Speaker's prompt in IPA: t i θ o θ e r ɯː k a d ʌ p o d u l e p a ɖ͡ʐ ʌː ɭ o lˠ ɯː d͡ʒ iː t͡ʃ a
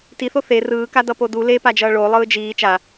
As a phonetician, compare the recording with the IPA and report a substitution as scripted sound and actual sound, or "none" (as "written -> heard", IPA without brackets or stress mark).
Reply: ɖ͡ʐ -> d͡ʒ